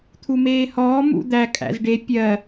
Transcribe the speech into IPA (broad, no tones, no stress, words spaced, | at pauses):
t̪ʰumeːhɔː mṵd̪æ kʼæ̰zɖe pʲɜ